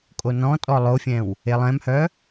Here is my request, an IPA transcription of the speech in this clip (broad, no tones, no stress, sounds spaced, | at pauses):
kʼ o n ɔ̃ tʼ ɔ lˠ o fʲ ɛ̃ w | e lˠ ɛ̃ m h œ